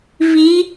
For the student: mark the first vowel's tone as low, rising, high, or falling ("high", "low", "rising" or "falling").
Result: rising